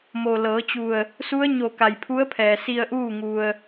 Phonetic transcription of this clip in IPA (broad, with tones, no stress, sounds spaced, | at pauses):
m o˩ l ɤː˩˧ t͡ɕ u˧˩ ə̯ | s u˧˥ ə̯ ɲ o˧˩ k a˩ j pʰ u˧˥ ə̯ pʰ ɛː˩ s i˧ ə̯ ʔ uː˥˨ ŋ u˧ ə̯